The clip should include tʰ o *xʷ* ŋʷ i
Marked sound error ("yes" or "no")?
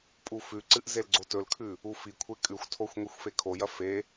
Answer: no